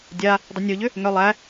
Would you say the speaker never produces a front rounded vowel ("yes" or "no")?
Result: no